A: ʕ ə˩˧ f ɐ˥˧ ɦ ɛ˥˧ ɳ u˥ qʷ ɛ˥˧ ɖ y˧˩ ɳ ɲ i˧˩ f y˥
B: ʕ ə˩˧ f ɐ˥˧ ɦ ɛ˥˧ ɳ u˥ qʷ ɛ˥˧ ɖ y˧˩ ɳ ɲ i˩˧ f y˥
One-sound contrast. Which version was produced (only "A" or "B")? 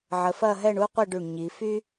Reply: B